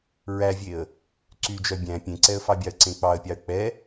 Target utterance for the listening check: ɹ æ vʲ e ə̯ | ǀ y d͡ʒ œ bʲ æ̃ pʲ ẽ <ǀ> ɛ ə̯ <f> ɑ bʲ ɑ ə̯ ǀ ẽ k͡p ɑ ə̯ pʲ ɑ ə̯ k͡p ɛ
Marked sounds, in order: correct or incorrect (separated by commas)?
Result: correct, correct